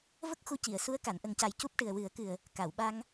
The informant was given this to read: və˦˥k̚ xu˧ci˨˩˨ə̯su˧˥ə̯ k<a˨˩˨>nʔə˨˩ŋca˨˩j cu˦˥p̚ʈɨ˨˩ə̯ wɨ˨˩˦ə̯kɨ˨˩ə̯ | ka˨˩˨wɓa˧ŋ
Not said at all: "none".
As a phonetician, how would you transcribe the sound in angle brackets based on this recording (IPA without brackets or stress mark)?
a˨˩˨